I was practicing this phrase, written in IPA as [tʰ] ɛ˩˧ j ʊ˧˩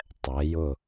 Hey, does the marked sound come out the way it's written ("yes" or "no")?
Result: no